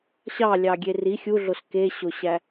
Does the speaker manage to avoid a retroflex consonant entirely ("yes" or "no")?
yes